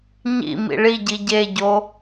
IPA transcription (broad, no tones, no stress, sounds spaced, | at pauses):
ɲ ḭ m ḭ ɭ i ɟ i ɟ e ɟ o